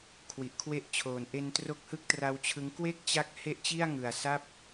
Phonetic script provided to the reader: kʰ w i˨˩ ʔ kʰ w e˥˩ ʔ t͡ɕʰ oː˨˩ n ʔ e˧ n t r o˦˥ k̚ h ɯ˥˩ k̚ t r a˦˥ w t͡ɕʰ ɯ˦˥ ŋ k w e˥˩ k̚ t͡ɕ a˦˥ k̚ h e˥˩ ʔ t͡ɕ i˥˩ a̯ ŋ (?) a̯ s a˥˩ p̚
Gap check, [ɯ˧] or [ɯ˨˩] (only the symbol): ɯ˨˩